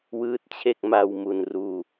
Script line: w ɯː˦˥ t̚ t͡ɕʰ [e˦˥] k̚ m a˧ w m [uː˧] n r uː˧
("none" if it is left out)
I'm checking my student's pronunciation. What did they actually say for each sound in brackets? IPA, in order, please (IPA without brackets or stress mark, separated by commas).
e˥˩, u˧